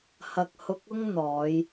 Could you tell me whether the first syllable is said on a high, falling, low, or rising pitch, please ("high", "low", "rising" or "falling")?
low